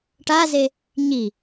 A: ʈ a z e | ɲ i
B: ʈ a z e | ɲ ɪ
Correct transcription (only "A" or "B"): A